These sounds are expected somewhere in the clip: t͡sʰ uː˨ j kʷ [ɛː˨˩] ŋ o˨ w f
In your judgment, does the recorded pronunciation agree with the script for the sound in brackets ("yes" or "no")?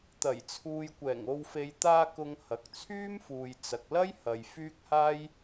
yes